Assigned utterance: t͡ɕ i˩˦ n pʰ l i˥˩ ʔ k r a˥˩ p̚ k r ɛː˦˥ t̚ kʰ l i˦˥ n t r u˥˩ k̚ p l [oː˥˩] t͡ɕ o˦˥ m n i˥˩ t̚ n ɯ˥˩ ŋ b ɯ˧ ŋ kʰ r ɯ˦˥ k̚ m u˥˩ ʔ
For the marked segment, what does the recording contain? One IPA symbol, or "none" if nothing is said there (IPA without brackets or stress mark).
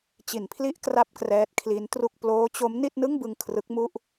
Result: oː˦˥